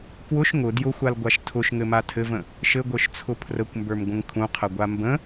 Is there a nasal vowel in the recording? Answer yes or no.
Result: yes